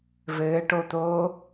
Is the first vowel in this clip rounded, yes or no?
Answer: no